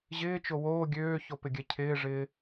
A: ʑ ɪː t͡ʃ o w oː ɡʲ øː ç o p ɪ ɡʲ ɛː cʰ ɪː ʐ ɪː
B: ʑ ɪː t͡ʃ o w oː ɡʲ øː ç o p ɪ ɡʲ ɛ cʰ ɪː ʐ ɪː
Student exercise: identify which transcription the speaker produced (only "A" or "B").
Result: B